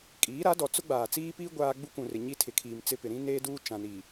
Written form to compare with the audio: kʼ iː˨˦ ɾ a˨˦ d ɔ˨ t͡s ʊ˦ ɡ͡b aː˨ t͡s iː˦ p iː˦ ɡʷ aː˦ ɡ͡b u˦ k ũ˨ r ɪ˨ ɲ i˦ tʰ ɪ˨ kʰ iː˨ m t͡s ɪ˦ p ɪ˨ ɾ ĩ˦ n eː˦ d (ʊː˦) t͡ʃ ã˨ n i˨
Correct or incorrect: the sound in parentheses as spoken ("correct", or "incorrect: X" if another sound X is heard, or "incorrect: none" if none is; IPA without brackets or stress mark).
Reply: incorrect: uː˦